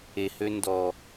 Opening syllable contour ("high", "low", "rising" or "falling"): low